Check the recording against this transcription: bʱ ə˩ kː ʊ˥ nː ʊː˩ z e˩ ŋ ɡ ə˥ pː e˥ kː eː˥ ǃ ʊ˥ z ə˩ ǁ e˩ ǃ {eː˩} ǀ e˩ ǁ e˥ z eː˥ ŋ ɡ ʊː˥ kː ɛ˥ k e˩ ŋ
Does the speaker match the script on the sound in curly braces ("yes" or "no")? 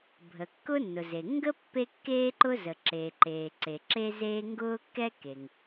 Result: yes